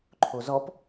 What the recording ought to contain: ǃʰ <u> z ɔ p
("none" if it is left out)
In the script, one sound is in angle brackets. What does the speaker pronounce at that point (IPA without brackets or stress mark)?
o